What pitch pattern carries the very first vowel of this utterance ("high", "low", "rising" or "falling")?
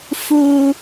high